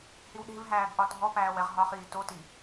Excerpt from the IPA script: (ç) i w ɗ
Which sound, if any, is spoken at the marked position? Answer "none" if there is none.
h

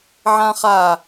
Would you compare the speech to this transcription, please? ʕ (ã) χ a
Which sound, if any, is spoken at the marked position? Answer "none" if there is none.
ã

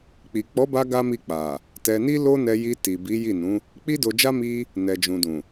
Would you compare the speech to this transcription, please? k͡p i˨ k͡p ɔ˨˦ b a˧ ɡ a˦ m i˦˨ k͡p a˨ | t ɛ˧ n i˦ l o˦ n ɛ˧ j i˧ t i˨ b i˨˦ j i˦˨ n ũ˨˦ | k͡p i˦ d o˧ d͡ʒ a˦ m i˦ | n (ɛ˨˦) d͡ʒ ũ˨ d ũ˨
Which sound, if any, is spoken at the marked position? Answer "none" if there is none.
ɛ˨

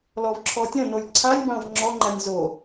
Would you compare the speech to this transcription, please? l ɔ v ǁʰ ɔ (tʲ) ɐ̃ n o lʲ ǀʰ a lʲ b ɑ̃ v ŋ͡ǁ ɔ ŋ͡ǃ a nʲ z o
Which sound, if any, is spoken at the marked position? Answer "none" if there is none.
tʲ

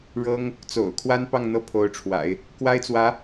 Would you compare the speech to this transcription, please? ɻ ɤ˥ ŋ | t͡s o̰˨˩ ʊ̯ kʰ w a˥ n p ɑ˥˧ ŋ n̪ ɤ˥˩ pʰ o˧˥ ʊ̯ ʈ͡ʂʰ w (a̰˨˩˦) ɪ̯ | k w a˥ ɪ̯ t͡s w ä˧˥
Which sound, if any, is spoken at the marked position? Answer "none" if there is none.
a̰˨˩˦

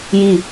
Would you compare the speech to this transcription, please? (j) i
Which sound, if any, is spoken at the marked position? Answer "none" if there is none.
j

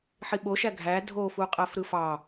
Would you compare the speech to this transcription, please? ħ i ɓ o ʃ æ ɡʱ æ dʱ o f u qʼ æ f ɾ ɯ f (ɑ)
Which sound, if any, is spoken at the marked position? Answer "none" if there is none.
ɑ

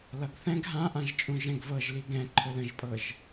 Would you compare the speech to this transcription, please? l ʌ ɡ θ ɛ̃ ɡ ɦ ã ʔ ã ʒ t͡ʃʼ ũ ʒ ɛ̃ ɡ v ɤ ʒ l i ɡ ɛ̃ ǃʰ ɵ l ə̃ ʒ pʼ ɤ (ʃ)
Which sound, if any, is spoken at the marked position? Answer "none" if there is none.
ʒ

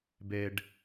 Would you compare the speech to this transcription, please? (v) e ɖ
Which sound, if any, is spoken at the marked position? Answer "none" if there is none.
b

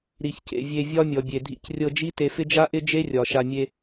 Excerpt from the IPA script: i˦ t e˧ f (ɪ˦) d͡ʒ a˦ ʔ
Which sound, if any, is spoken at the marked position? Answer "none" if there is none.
ɪ˦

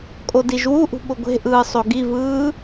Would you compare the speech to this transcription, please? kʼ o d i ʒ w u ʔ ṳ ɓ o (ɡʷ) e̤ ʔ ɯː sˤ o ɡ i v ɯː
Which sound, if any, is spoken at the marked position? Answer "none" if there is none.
ɡʷ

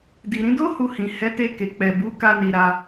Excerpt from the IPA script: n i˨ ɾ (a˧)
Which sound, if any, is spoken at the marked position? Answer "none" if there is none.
a˧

